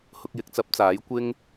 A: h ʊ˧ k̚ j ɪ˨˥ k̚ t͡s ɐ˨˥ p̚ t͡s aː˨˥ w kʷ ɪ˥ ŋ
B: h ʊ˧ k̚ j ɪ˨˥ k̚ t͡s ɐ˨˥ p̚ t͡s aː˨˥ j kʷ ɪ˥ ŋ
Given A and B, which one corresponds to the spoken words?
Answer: B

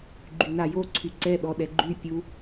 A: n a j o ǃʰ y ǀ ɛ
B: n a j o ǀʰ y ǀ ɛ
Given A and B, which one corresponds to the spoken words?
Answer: B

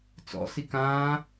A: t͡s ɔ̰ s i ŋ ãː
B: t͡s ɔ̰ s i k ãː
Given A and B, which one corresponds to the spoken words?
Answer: B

